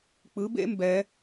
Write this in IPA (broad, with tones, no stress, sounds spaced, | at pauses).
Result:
k͡p ɯ˩˥ b ḛ˦˥ m b ɛ˩˧